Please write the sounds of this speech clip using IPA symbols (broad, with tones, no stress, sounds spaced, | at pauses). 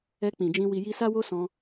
ɛ˧ k͡p ĩ˨ d͡ʒ ĩ˧ w i˨ j i˧ s a˦ w o˦ s ɔ̃˧